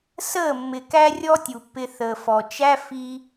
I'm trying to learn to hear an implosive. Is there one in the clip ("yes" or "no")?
no